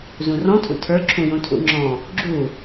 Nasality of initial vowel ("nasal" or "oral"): nasal